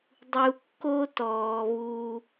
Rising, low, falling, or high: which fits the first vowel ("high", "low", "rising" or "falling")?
low